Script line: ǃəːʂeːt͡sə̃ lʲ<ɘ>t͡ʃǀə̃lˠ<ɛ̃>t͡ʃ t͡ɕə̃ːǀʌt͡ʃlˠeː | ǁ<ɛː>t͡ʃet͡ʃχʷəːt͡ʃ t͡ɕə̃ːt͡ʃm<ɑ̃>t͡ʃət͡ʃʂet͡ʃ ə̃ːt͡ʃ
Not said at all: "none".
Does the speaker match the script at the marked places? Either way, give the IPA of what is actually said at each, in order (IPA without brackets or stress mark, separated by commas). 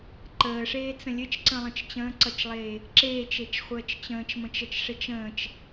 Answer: ɘ, ə̃, eː, ə̃